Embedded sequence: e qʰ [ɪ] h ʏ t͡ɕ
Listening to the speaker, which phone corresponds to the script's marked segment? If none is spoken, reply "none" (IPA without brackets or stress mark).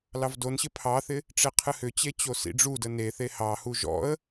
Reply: ɨ